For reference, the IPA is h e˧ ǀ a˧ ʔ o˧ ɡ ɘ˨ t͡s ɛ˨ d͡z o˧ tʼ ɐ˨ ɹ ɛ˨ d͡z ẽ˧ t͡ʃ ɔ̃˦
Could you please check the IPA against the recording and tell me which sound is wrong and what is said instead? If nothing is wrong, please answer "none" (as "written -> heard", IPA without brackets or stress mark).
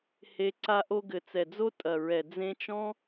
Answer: none